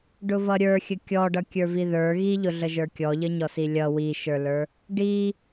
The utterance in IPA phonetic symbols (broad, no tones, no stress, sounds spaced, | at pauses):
ɖ ʊ v ʌ ɾʲ ə˞ xʲ ə kʲ ɔ ɖ ʌ kʲ ə˞ v i ð ə˞ ɣ i ʎ ʊ ɮ ə ʒ ə˞ kʲ ɔ ʎ ə ɲ ɔ s i lʲ ʌ w i ʃ ə˞ l ə˞ | ɖ i